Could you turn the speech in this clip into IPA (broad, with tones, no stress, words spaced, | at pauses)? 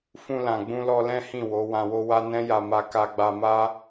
fũ˧lã˨ ɡ͡bũ˧lɔ˧lɛ̃˦ hĩ˦˨wo˨˦ wã˧wo˦wa˦ nɛ̃˦ja˧ma˧ ka˧ɡ͡ba˧ma˦